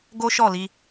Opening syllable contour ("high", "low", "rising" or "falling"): high